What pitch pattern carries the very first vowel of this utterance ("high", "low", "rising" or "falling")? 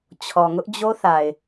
low